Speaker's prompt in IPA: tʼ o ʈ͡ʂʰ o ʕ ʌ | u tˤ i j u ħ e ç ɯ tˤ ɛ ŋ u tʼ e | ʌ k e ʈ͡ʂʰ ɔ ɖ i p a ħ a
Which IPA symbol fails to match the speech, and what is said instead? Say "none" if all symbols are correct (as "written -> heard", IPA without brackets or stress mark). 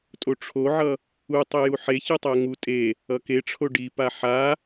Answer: ɔ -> o